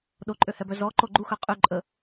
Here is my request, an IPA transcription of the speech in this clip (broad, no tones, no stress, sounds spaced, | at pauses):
ɗ o ǃʼ ø h ɛ b œ z ɔ ǃ o ɡ͡ǃ u x œ qʼ y ǃʼ ə